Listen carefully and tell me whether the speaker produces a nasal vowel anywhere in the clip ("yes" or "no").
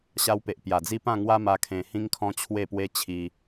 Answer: yes